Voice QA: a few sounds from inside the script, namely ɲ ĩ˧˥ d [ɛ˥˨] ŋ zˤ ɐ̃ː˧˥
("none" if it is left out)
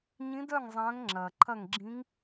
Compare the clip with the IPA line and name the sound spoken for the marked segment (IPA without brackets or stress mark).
œ˥˨